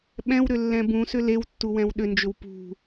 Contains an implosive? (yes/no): yes